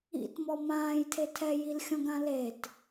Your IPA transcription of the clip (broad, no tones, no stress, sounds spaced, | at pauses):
ḭ t m ɔ m ãː j tʰ e tʰ ɛ j i l xʲ ɔ̃ ɡ ã l e t